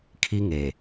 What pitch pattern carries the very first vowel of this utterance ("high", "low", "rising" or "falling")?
high